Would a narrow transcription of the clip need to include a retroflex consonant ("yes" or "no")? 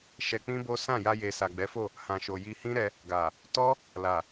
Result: no